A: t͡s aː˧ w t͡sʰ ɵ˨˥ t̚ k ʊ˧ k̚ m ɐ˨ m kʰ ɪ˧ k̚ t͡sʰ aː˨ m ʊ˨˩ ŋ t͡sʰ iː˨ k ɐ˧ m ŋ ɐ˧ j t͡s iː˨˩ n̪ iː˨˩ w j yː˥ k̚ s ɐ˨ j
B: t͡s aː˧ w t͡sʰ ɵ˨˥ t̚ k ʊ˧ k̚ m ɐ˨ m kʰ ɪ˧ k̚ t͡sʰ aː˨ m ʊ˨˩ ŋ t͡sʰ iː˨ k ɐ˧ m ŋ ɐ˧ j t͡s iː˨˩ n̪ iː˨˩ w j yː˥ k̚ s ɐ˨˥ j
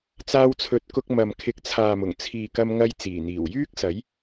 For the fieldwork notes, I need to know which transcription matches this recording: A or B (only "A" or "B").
B